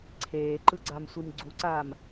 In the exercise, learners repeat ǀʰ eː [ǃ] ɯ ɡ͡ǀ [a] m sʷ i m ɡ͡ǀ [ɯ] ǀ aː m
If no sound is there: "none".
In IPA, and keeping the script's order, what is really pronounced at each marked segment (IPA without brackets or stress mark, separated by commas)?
ǃ, a, u